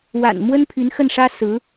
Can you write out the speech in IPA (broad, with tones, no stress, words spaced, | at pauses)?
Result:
wa̰˨˩nmwə˥n pʰy˧˥nxə˥˩nʂä˥ sɹ̩˧˥